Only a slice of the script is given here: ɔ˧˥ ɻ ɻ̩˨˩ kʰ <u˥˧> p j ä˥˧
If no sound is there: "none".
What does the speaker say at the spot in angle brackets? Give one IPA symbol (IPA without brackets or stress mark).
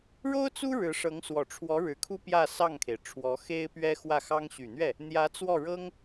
u˥